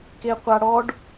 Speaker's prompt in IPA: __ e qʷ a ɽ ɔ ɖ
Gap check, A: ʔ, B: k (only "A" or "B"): B